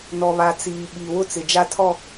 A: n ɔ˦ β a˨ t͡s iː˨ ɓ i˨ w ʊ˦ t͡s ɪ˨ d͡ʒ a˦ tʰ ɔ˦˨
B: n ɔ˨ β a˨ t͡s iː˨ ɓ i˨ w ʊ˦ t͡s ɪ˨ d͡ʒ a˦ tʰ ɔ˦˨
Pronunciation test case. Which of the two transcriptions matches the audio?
B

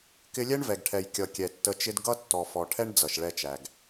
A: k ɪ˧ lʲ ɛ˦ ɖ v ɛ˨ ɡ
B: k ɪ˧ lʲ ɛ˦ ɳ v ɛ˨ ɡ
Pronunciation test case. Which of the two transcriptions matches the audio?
B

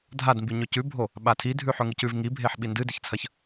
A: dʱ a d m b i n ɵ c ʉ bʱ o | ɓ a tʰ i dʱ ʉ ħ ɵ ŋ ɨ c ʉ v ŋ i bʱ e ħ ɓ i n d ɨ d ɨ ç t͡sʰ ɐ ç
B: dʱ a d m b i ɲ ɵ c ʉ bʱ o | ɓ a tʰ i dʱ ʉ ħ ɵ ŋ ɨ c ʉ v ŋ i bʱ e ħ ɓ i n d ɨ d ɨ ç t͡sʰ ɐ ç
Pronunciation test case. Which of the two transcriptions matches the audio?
B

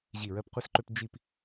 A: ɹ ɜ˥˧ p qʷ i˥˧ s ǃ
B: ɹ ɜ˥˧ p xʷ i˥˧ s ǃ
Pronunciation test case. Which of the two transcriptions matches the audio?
A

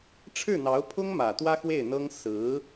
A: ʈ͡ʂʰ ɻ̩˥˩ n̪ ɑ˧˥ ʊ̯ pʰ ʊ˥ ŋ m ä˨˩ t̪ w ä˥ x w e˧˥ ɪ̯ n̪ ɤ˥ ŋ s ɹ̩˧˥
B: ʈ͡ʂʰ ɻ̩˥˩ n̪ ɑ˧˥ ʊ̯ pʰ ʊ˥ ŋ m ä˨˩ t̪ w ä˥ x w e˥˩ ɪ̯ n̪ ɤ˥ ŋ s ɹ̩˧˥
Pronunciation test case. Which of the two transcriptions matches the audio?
B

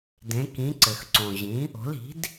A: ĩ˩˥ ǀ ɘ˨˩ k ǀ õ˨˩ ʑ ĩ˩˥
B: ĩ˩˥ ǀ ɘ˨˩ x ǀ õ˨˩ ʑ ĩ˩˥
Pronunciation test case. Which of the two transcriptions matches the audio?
B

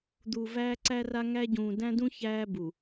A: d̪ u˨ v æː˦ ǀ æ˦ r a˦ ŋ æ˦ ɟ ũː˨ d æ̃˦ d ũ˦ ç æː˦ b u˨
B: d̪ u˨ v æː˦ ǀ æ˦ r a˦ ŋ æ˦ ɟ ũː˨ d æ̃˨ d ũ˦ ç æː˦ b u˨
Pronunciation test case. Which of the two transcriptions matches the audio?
A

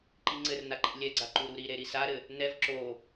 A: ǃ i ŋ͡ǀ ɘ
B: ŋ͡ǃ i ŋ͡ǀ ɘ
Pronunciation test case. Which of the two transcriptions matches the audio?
A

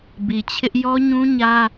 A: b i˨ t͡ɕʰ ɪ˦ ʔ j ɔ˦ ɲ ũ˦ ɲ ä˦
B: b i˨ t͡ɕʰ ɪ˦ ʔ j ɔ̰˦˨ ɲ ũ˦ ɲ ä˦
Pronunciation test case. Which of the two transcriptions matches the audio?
A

